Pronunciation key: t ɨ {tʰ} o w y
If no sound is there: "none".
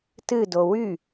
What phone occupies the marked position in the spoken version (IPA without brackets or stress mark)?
d